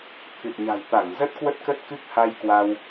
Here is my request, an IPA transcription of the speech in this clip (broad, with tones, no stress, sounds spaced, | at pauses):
t̪ʰ ɨ˨˩ t̚ ɲ a̤˨˩ j t̪ a˧˩ ŋ z ə˦˥ t̚ k w ə˦˥ t̚ k ə˦˥ t̚ k ɨ˦˥ k̚ h a˧ j k w a˧ w